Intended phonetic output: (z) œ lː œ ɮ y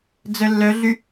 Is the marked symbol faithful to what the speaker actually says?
no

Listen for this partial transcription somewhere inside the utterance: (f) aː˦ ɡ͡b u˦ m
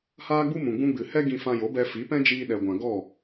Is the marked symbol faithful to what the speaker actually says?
no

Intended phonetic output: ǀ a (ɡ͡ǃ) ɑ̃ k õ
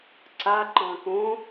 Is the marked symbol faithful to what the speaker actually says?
no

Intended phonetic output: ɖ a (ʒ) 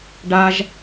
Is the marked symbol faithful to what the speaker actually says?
yes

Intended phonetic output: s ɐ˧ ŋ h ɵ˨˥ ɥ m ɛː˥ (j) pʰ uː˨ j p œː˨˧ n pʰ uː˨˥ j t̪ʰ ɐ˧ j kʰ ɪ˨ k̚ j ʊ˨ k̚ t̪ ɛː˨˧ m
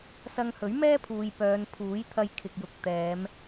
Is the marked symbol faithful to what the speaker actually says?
no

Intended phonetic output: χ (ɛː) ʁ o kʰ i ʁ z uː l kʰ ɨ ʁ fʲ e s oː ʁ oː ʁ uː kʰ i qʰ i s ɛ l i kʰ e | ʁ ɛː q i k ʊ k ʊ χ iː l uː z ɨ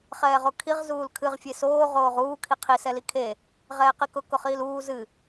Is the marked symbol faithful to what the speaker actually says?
yes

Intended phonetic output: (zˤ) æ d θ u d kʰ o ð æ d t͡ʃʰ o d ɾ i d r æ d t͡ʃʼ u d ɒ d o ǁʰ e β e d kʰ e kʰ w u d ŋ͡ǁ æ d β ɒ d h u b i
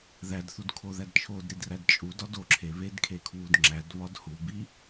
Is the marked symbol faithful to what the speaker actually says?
no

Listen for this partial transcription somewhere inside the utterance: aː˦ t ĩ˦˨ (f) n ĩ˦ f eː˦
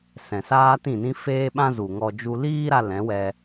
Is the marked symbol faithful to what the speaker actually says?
no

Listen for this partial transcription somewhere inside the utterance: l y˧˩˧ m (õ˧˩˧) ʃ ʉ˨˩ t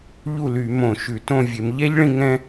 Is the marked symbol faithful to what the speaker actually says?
yes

